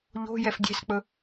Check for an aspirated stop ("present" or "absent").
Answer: absent